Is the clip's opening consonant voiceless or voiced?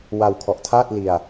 voiced